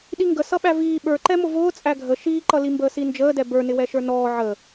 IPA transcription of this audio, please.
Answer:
ɗ i ŋ ɡ ə s ʌ ɓ æ v iː ɓ ə˞ ǃ ɛ m ʊ v ʊː t͡sʼ æ ɡʱ ə ʃ iː ǃ ʌ l i m b əː s i n d͡ʒ əː d ɛ b ə˞ n ɪ w ɛ ʃ ə˞ n ɔː ʕ ə

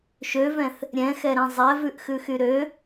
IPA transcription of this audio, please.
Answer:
ʃ ø v ɛ̃ θ | ɾʲ ɛ̃ x ɛ ɾ ɛ̃ zˤ ɛ v ʉ ʔ x ʉ x y ɾ ø

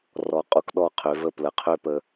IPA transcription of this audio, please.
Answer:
r ɔ˨ qʼ u˨ k ɗ ɔ˦˨ qʰ ø˨˦ v ə˦˨ p l ə˨ qʰ ø˦ p ə˦

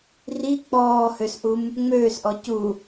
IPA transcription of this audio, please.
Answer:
r i k͡p ɔː h ø s ʔ u m | ŋ͡m øː s ʔ ɔ c u

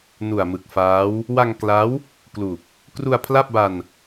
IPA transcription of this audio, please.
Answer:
n u˨˩ a̯ m ɯ˨˩ k̚ f aː˦˥ w | w a˧ ŋ k l a˦˥ w | k l u˨˩ k̚ | k r u˧ a̯ pʰ l a˥˩ p̚ b a˧ n

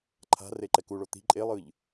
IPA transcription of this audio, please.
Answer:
ǃʰ a̤ r e ǃ ɛ k u ɭ o t̪ i̤ ǃʼ e lˠ ɯ ʎ

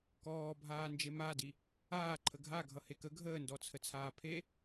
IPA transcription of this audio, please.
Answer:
k ɔː bʱ aː n d͡ʒ e m a d i | aː ǃʰ ə ɡʱ a ɡʱ ʌ h e k ə ɡʱ əː n d ɔ t͡sʰ ə t͡sʰ aː pʰ e

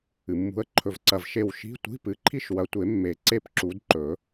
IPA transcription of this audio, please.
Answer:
ɨ˩ mː ṳ˨˦ ə̯ ǃʰ ɵ˧˩ v ǀ ɐ˧˩ v ʃ e˧˩ w ʃ i̤˧˥˧ tʷ i̤˧˥˧ p ɨ˨˦ ǃʰ i˥˨ ʃ w ɐ˨˦ tʷ e˨˩˦ mː e˨˩˦ ǀ e˥˨ p ǁ u˨˦ d ǃ ɵ˨˩˦

